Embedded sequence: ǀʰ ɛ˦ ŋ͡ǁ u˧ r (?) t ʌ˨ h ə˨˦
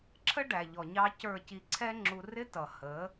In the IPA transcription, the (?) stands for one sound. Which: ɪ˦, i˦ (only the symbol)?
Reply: ɪ˦